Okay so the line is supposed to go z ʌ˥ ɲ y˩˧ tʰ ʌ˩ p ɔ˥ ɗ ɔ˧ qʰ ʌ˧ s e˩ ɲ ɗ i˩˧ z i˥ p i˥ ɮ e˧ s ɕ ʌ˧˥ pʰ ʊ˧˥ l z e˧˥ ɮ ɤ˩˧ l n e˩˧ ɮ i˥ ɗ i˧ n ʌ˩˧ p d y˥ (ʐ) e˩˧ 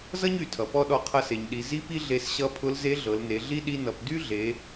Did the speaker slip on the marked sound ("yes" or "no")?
yes